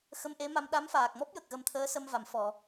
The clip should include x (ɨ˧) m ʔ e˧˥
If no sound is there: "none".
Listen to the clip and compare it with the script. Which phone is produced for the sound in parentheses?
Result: ə˧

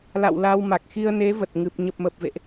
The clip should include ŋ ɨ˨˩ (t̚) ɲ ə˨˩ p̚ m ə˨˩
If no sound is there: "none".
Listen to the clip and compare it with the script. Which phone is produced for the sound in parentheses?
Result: p̚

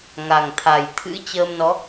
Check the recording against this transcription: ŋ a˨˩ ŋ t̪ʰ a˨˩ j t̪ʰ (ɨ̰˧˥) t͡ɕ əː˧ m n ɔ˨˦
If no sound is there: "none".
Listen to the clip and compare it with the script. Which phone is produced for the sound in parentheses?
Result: ɨ̰˧˥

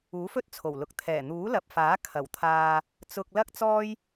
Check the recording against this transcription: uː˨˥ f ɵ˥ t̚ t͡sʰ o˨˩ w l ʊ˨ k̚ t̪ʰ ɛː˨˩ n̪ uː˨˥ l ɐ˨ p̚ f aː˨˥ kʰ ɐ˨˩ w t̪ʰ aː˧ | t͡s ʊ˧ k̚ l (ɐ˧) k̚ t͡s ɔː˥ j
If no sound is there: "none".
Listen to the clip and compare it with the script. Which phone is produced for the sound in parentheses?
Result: ɐ˥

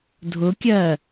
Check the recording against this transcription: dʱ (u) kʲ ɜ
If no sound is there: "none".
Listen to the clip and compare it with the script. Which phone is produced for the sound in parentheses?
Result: ʊ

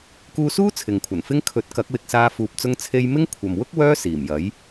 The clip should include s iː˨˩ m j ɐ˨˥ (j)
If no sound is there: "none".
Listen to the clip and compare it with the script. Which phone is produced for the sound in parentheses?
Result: j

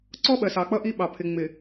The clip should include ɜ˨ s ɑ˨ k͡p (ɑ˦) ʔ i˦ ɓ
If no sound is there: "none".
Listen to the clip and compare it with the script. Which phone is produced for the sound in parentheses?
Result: ʌ˦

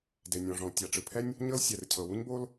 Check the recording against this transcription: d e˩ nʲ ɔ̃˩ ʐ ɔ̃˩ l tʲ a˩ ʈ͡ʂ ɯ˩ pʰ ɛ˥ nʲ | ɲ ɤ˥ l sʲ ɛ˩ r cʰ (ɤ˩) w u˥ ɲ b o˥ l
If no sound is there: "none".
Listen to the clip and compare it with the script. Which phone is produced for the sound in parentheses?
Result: ɤ˩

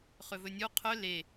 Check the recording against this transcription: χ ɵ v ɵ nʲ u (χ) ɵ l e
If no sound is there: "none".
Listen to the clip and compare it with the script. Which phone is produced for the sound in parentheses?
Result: qʰ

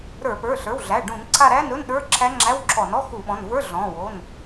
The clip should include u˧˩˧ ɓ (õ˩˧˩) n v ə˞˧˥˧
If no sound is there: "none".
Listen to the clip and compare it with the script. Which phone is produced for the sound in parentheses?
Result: ɔ̃˩˧˩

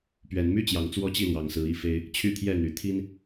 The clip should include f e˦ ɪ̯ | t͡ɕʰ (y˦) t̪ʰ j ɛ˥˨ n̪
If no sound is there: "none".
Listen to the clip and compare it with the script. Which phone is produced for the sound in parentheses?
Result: y˥˨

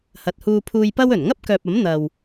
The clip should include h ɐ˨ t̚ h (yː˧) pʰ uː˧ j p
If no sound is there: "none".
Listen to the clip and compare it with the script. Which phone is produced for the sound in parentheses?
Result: uː˧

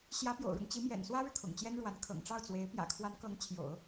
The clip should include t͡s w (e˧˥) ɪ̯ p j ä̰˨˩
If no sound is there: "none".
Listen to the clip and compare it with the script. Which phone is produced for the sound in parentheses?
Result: e˧˥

